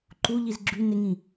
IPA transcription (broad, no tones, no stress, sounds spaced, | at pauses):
ǃ u ʎ i z ɡ͡ǁ y n ɪ ŋ ĩ